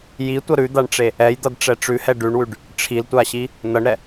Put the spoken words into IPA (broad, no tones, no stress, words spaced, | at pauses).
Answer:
jitʷʌ ɾʉd̪aɳʈ͡ʂe | ɛjd̪ʌdʈ͡ʂɛ ʈ͡ʂʉhɛ ɖʉɳwʉɖ | ʈ͡ʂʰiltʷaɕi | nʌɳɾɛ